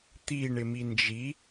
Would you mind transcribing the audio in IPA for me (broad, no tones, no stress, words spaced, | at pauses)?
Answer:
t̪i ɳɪmind͡ʒi